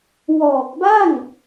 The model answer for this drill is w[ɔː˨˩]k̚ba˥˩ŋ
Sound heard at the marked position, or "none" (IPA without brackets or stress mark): ɔː˨˩